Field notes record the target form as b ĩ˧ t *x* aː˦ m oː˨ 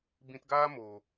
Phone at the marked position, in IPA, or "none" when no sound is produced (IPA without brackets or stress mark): ɡ